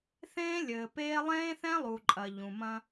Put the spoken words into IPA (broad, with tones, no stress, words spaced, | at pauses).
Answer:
θẽː˦lʲɘː˨peː˦ lˠẽː˦θɛ̃˦lˠu˨ ǃʼɐ˨ʎũ˨mɐ̃˦